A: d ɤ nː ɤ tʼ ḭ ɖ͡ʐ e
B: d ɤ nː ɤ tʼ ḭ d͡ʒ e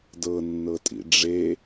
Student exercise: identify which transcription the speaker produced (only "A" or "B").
A